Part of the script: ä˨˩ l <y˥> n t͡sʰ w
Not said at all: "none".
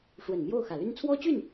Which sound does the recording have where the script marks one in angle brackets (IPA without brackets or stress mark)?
y˥